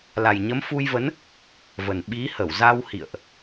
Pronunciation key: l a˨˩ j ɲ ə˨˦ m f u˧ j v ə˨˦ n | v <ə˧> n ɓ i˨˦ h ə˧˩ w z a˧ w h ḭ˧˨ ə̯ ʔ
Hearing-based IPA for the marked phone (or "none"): ə˨˩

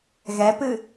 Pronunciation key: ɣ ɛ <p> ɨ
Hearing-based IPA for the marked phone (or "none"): p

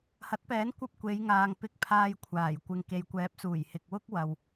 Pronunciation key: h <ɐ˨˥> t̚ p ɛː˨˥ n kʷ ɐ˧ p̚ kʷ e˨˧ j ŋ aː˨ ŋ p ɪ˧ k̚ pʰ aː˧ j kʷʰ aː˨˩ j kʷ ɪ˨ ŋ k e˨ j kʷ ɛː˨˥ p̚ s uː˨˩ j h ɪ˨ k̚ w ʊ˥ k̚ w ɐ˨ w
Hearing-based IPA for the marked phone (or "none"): ɐ˨˥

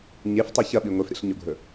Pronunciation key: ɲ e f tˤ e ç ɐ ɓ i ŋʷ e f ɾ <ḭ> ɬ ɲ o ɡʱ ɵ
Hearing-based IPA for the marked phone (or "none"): ḭ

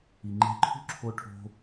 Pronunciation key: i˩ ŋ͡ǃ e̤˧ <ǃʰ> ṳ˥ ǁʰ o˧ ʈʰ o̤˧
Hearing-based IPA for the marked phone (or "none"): ǃʰ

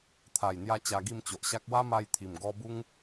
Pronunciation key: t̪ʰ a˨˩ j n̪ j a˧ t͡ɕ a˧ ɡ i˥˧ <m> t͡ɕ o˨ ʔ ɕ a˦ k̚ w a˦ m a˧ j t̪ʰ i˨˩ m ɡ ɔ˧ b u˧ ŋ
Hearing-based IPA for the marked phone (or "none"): m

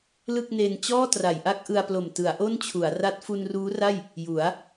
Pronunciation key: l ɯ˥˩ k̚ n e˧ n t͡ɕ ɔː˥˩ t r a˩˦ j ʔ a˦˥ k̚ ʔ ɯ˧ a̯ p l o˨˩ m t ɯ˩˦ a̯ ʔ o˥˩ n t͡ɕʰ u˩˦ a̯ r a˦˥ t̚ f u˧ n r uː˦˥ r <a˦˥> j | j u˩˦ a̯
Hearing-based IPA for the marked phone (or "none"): a˥˩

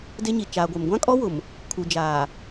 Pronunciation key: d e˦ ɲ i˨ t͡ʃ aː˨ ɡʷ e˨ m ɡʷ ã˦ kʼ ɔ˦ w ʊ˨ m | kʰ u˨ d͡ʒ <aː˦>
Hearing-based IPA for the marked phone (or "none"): aː˨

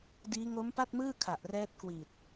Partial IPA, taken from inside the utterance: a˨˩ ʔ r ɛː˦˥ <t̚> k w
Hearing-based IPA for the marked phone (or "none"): t̚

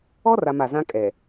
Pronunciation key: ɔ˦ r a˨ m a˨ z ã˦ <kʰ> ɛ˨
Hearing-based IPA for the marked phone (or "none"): kʼ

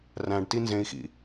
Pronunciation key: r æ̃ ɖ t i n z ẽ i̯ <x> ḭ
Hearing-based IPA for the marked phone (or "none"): x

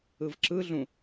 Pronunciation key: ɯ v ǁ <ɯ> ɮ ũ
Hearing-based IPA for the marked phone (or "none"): ɯ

